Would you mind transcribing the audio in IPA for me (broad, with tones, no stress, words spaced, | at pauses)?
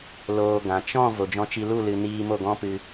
loː˧ɡã˨ t͡ʃɔ̃˦˨ vo˨d͡ʒɔ̃˧t͡ʃi˧ lu˦˨lɨ˨ niː˧mo˦˨ɡɔ̃˦pɨ˧